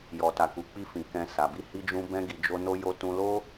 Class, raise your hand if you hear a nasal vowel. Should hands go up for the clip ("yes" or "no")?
yes